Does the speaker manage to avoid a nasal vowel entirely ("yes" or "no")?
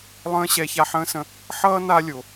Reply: no